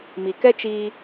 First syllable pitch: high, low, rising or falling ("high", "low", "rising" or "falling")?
low